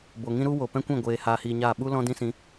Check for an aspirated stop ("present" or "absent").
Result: absent